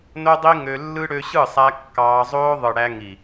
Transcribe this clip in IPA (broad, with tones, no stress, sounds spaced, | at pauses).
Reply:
n o˦ dˤ i˦ ŋ ø˧ lː ɯ˦ ɽ ø˧ ɕ ɯ˦˨ sˤ æ˧ kː ɑː˧ zˤ oː˦ ðˤ ɯ˨ ɽ æ˧ ŋ i˨